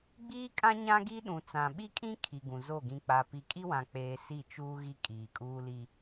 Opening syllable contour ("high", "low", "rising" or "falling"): high